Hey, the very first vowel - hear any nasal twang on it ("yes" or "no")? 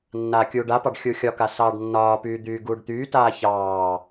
no